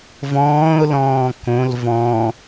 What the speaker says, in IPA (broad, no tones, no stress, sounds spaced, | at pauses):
v ɔ̃ː ʊ̯ l ɔ̃ː k õ l v ɔ̃